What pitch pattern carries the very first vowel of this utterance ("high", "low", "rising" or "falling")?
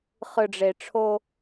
low